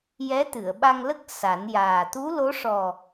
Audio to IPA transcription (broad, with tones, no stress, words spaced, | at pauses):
jɛ˧˥t̪ɨ˨˩˨ə̯ɓa˧ŋlə˦˥k̚ sa˨˩˦njaː˨˩ t̪u˧˥lo˧˥ʂɔ˨˩